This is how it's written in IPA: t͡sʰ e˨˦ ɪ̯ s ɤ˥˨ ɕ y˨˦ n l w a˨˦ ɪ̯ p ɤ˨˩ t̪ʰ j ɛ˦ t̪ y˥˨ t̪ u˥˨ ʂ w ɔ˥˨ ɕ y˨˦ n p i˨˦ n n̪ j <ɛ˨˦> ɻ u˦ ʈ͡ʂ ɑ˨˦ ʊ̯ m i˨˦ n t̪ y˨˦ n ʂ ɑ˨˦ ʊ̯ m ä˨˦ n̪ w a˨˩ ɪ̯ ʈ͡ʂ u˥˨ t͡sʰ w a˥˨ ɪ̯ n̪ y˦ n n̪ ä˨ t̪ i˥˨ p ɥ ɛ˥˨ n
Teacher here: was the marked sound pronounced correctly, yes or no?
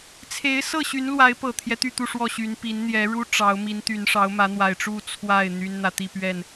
yes